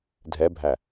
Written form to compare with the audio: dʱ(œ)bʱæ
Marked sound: incorrect: ɛ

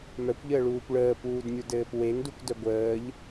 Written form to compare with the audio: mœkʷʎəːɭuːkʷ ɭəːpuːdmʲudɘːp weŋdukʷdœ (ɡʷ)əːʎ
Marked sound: correct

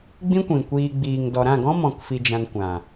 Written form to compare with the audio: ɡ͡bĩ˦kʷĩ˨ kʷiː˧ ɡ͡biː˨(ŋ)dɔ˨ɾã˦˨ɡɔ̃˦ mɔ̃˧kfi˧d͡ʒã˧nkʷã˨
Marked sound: correct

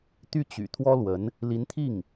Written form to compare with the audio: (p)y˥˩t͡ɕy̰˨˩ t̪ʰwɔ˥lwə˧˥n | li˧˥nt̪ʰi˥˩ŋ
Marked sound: incorrect: t̪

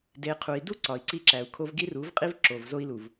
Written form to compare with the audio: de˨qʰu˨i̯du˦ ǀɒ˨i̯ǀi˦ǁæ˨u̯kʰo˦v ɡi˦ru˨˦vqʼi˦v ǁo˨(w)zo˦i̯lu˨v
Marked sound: incorrect: v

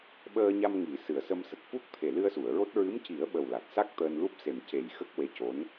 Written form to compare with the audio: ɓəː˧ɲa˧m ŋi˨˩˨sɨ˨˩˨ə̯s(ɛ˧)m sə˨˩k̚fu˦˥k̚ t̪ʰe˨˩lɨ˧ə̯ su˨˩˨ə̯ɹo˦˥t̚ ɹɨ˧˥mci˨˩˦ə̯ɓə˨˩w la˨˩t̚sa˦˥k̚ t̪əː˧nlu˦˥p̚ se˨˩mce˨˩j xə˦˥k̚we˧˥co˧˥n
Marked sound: incorrect: ə˧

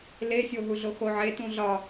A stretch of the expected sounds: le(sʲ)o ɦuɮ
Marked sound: correct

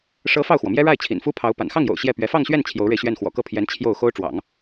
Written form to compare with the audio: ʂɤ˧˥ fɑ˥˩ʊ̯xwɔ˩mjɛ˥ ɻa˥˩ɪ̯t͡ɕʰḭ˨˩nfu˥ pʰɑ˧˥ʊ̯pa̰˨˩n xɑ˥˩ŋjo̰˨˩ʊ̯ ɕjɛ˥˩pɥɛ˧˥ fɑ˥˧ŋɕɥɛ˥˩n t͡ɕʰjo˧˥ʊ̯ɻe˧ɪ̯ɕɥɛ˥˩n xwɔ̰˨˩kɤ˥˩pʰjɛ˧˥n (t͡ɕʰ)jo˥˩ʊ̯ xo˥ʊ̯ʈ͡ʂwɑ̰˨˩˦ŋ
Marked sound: correct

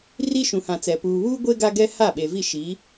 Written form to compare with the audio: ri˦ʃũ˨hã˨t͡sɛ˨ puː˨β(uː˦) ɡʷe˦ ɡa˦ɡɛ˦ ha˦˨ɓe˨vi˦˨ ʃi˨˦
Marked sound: correct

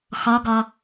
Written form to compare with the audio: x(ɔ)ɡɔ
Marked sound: correct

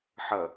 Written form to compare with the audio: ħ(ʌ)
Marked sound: correct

